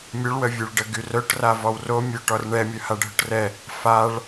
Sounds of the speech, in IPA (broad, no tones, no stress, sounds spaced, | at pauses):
mʲ œ ɭ w ə vʲ ø ɭ ɖ ə ɡ y r œ ʈ r a v ɔ w r o mʲ ø ʈ ɔ r ɳ ɛ mʲ œ h a ɖʱ œ ʈ r ɛ | f a ɭ